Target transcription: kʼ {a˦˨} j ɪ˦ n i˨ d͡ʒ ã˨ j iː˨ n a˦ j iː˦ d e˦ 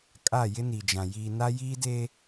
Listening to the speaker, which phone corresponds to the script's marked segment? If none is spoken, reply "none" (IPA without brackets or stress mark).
a˦˨